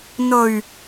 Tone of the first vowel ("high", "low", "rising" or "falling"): low